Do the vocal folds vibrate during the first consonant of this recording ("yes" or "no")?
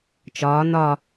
no